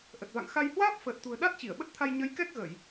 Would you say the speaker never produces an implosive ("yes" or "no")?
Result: no